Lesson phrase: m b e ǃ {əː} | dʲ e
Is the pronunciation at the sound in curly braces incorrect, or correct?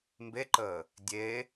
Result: correct